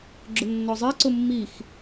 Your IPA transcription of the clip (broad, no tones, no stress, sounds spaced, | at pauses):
ɡ͡ǁ ʊ nː ɔ zˤ ɛ ǀ ʊ mː i x